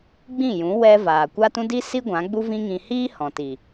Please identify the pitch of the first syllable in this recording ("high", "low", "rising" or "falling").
falling